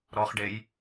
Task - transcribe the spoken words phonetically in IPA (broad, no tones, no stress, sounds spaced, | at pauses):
ɾ ɔ χ ɖ e j